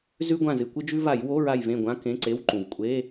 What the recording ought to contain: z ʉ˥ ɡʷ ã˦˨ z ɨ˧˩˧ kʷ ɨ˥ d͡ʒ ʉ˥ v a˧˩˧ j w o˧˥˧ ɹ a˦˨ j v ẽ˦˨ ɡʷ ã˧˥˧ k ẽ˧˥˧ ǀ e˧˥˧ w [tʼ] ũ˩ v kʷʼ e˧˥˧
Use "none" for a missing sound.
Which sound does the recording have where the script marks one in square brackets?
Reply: ǃ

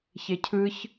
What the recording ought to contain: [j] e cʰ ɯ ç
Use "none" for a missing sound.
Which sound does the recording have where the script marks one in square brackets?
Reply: ç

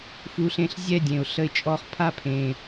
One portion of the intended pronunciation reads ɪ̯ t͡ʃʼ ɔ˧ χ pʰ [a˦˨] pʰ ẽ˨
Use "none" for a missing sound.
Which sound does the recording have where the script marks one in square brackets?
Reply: a˦˨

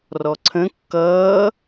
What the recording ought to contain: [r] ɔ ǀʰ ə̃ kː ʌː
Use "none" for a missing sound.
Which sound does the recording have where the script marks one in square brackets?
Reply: r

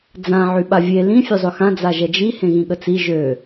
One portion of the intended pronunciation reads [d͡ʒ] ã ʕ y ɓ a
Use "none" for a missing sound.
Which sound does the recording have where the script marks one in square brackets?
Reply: d͡z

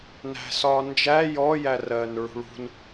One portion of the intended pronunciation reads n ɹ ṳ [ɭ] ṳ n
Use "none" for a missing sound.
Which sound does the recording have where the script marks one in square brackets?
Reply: ɭ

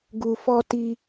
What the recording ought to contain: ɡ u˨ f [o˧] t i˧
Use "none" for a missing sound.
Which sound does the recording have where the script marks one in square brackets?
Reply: ɔ˧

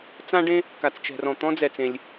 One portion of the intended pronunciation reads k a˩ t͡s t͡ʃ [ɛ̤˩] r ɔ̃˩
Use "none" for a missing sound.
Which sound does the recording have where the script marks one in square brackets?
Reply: ɛ̤˩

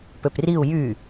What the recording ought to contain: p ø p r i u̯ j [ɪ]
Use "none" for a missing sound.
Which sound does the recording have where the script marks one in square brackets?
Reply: y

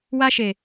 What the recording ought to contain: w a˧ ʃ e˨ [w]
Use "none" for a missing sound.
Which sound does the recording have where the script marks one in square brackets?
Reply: none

